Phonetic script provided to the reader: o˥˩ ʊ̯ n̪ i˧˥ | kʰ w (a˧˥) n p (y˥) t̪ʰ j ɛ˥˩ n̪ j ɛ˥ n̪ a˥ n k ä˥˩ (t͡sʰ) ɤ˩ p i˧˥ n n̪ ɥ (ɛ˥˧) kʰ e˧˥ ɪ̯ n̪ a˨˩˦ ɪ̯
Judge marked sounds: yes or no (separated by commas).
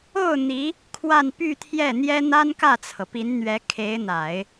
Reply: no, no, yes, no